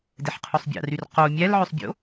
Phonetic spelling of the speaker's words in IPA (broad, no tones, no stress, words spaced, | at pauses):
deħqʰusˤbʲɑ̰ryr qo mʲælʕøsˤbʲo̰